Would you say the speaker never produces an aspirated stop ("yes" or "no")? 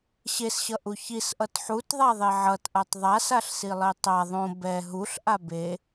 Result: yes